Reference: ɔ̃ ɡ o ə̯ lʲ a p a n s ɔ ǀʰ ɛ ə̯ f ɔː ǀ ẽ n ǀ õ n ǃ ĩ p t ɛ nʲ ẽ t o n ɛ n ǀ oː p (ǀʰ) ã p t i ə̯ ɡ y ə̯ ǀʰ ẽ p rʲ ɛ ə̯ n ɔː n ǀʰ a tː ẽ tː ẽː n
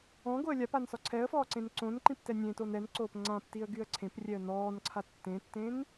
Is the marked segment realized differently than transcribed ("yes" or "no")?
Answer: yes